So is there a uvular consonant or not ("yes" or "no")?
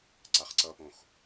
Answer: yes